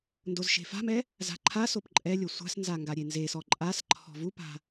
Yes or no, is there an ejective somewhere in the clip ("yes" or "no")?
yes